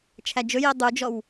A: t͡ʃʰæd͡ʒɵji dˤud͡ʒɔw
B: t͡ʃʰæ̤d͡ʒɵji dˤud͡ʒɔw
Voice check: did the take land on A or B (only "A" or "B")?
A